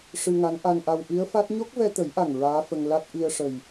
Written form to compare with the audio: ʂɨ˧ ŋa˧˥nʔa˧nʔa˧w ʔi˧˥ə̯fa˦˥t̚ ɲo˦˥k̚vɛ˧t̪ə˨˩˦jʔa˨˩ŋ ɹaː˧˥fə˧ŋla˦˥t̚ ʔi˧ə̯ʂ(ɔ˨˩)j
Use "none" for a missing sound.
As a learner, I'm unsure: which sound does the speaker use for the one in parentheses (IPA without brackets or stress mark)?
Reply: ə˨˩